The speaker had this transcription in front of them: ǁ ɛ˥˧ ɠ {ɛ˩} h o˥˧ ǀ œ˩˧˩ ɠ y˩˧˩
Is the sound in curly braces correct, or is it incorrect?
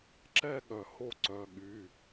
incorrect